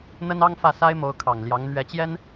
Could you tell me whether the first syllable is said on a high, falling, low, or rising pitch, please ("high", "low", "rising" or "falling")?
high